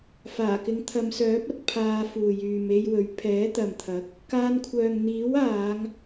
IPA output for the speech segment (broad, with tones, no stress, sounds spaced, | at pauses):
f aː˨˩ k ɪ˨˧ ŋ t̪ʰ ɐ˨˧ m s œː˨˥ p̚ ɐ˨˥ t̚ pʰ aː˧ f uː˨ j yː˨ m e˧ j w ɵ˨˥ ɥ pʰ ɛː˨˥ t̪ ɐ˨ m t̪ʰ ɐ˨˥ k̚ | k aː˧ n kʷʰ œː˨ ŋ n̪ iː˨˥ w aː˨˧ ŋ